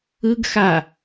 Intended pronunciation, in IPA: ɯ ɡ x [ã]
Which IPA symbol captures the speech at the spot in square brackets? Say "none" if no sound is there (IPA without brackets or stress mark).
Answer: a